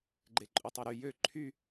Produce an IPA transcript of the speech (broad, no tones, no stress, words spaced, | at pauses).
ɡ͡ǃeǃʼutˤoɾy jø ǃʰy